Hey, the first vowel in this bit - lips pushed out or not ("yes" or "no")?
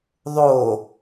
yes